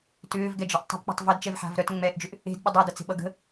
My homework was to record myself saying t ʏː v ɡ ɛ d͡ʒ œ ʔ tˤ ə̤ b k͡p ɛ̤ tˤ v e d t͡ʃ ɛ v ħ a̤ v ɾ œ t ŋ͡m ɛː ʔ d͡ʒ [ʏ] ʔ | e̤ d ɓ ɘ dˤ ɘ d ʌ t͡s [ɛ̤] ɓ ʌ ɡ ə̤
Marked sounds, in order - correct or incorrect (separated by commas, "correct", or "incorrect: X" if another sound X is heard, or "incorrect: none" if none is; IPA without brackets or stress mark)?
correct, incorrect: e̤